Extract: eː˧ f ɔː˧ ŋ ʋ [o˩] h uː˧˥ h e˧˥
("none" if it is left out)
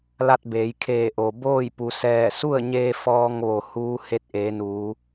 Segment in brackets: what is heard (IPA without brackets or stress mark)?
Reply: o˩